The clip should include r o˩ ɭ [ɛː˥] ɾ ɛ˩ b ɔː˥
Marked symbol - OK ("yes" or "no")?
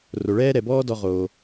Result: yes